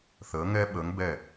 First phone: θ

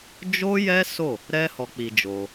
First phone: d͡ʒ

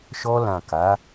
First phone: ʃ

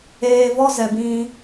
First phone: eː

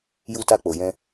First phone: j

